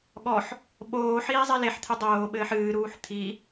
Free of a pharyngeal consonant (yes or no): no